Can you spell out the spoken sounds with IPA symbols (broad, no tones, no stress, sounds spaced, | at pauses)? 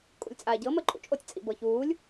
kʼ ṵ lʲ t͡sʼ aː ɟ ɤ m əː ǃʼ ṵ t͡ʃʼ o tʲ t͡sʼ ḭ b ɤ ç uː lʲ